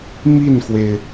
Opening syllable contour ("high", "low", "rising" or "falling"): falling